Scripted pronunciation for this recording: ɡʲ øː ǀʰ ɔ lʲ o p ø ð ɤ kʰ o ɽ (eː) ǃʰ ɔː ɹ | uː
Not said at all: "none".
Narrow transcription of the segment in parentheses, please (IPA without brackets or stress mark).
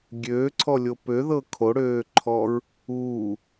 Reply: øː